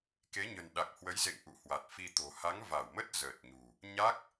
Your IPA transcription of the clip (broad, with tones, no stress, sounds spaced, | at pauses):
k e˨˦ ɲ ə̤˨˩ n ɗ a˨˩ k̚ h w ə˨˦ j z ḛ˧˨ ŋ ʔ ṵ˧˨ h w a˨˩ t̚ f i˧ t̪ o̤˨˩ h a˨˦ ŋ v a˧˩ w m ə˦˥ t̚ z əː˨˩ t̚ ɲ ṳ˨˩ | ɲ a˦˥ k̚